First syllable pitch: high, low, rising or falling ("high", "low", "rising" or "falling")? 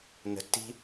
low